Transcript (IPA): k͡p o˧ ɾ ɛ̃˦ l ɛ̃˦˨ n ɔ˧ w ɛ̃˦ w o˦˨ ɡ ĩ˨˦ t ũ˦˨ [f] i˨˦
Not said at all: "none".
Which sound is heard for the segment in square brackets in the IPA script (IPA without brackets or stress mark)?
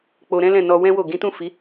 f